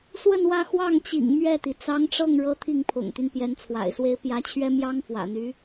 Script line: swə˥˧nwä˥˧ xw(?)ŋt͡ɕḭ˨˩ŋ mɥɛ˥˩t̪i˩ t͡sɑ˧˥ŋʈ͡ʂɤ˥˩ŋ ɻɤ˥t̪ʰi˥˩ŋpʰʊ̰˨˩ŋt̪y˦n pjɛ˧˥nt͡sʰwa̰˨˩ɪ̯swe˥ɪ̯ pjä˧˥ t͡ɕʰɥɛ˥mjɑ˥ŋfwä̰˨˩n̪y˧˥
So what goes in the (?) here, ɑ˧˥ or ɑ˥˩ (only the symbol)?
ɑ˥˩